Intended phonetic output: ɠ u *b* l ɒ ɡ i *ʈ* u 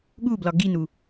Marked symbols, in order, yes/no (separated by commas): yes, no